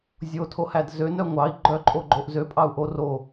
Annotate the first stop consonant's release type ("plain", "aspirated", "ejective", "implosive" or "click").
aspirated